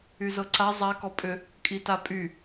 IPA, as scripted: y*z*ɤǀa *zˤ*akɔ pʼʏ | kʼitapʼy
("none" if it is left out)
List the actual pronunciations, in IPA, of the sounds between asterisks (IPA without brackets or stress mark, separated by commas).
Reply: z, zˤ